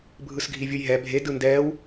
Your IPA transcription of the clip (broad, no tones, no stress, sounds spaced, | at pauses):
bʱ ɯ s ɡʱ i vʲ ɯ j ɦ ɛ bʱ e d ɯ n d ɛː w